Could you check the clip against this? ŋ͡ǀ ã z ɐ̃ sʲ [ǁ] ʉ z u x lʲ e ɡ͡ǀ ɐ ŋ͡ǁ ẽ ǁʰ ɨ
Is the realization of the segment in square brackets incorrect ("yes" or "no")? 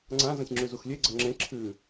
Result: yes